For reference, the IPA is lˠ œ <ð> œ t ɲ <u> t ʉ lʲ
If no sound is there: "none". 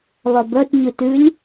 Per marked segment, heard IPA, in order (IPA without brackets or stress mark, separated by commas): b, ʉ